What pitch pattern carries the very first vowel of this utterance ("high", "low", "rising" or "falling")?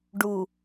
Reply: low